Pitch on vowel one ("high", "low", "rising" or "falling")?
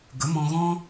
rising